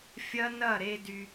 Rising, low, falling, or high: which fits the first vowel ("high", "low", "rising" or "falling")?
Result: high